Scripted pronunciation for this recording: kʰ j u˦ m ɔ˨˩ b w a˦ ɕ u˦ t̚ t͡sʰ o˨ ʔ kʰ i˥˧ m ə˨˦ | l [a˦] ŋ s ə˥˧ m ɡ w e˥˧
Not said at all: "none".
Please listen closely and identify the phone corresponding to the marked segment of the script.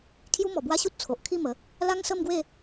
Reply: a˦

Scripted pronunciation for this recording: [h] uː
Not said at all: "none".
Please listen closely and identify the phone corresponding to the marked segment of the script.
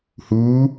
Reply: h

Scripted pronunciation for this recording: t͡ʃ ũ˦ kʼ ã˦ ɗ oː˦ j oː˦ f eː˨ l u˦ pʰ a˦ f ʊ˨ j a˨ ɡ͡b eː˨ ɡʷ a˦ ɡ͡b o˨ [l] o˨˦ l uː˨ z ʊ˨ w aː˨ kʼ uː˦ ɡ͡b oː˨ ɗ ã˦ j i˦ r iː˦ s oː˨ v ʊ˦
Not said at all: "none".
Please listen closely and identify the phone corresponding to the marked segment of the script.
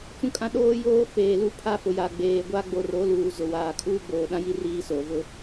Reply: r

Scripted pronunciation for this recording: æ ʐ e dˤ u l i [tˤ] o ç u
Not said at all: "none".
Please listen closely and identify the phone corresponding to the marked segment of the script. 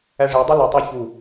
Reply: tˤ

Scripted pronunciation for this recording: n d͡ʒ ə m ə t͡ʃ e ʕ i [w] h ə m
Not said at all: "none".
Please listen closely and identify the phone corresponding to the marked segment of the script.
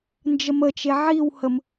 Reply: w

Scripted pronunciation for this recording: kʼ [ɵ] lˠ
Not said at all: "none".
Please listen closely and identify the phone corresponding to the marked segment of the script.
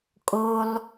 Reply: o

